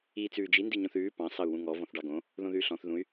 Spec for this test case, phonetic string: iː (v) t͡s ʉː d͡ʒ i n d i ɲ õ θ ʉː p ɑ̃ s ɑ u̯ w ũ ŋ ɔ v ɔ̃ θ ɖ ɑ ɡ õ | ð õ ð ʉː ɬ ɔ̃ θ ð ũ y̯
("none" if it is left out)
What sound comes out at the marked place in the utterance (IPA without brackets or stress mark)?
none